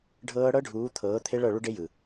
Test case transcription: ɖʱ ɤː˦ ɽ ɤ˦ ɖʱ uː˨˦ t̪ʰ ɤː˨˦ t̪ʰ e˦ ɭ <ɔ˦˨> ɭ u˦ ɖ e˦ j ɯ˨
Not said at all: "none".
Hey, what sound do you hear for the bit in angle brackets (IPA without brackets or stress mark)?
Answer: ɤ˦˨